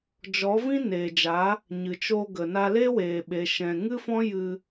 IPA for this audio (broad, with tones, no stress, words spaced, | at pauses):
d͡ʒɔ˨˦vĩ˦ neː˨d͡ʒa˨˦ | ɲɨ˨ t͡ʃo˧ɡə˨na˧ le˦weː˨ɓe˨ ʃɛ̃˨ŋɨ˦fɔ̃˦ jɨ˧